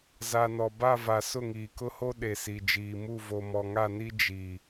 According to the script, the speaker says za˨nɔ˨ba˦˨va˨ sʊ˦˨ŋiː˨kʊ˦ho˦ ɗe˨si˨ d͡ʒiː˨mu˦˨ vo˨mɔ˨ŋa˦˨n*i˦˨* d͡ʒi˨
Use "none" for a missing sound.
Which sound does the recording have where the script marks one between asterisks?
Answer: i˦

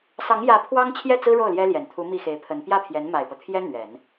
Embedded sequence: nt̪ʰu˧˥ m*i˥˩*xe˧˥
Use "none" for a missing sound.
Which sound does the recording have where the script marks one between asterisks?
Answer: i˥˩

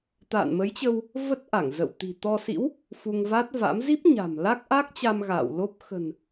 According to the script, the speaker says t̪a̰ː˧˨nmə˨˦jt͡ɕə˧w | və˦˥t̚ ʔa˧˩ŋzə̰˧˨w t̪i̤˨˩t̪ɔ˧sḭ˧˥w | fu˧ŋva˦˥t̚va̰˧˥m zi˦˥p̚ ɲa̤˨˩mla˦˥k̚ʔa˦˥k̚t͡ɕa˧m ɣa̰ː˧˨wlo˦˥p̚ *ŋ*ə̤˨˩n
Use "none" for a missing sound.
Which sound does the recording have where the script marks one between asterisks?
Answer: x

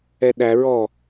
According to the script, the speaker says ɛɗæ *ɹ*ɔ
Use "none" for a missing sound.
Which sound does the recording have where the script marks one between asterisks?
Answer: ɹ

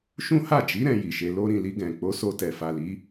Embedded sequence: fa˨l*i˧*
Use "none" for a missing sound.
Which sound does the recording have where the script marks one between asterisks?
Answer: i˨˦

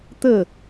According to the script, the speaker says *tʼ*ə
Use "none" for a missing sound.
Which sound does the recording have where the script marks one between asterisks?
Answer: t̪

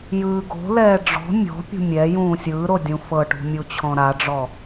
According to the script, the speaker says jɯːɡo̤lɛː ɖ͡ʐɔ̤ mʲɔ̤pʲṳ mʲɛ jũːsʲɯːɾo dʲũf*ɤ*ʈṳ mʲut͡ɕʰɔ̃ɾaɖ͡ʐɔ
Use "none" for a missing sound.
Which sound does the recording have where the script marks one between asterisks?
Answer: ɤ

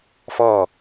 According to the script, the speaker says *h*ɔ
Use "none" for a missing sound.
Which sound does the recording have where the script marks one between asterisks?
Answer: f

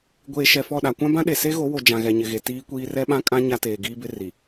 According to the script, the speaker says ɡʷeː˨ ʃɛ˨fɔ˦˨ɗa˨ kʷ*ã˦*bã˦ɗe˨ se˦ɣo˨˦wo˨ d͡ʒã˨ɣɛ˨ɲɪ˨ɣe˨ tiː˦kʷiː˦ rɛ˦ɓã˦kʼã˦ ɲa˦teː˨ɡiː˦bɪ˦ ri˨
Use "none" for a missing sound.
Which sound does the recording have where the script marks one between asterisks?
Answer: ã˦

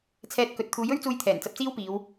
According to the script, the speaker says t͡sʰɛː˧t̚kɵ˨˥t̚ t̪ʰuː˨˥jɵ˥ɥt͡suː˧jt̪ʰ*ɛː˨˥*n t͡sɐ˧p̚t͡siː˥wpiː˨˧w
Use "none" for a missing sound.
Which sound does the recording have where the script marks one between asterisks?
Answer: ɛː˨˩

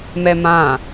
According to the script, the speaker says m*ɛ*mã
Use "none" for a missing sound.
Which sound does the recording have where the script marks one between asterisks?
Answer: ɛ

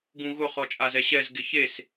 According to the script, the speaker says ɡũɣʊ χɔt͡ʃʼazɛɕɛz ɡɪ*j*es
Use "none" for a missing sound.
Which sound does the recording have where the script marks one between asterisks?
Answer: ç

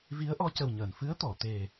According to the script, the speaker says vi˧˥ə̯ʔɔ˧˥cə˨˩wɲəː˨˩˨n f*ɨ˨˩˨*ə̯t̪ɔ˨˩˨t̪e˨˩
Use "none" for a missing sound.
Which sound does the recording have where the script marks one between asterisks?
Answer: ɨ˧˥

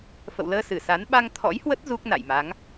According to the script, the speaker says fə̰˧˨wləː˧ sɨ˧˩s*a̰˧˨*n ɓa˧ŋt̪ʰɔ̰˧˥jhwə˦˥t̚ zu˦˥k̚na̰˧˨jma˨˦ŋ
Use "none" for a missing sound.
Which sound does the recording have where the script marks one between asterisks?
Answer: a˨˦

